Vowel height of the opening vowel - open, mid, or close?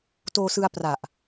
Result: mid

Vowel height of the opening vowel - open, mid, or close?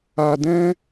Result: open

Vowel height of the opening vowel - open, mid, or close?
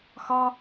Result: open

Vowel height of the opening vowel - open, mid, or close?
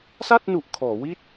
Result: open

